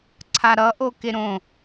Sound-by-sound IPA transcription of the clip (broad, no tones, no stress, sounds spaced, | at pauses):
ǀʰ a ɾ ʌ ʔ o k e ɾ õ